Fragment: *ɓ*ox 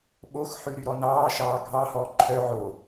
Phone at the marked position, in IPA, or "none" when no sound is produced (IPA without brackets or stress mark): ɓ